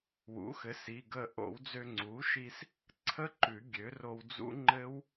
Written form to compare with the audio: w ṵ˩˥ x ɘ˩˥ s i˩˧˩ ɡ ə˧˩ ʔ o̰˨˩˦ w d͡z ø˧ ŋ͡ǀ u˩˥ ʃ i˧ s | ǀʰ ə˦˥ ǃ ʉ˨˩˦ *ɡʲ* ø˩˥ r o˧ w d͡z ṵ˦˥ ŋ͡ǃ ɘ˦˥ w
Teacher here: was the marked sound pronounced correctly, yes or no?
yes